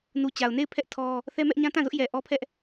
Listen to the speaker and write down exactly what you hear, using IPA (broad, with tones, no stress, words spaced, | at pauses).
nu˨t͡ɕa˨ʊ̯ne˦˨ɪ̯pʰɛ˦ʔ tʰɔ˦ | θɛ˦mɛ˦ʔ ɲã˦tã˦˨zʊ˦ʔjɛ˨ ʔɔ˦pʰɛ˦ʔ